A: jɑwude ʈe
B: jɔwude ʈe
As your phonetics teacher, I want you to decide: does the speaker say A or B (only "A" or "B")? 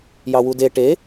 A